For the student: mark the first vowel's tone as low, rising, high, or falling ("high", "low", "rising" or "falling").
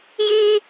high